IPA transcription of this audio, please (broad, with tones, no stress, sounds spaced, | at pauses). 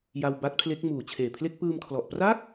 j a˧ w b a˦˥ t̚ pʰ l e˦˥ k̚ m uː˨˩ t͡ɕʰ eː˨˩ pʰ l e˥˩ k̚ p ɯː˧ m kʰ l ɔ˨˩ ʔ p r a˥˩ k̚